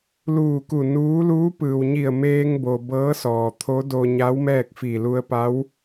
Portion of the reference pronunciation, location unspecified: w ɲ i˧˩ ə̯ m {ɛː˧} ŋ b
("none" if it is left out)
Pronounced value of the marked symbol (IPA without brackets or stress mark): eː˧